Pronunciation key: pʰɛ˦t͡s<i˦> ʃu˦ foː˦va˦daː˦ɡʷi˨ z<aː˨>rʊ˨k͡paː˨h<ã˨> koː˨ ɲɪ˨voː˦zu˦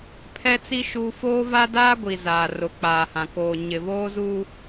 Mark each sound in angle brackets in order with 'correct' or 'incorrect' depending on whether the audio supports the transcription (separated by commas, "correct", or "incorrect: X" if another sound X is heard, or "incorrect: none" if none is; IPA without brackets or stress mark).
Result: correct, correct, correct